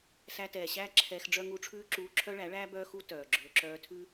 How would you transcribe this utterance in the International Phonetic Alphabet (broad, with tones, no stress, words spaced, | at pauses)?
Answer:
sæ˧tɛː˨ɕæː˦ ǁʰɛː˧xɖ͡ʐœ˦ ŋuː˧ʈ͡ʂʰʉː˦ǁuː˧ ǁʰœ˦ɭæ˨˦ɭæː˦ bœː˦xu˦ tœː˨ɡ͡ǁɵː˧ ǁœː˧tʰʉ˦